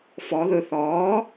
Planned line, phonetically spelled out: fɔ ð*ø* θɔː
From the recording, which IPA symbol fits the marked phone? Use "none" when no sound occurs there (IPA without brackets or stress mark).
ɵ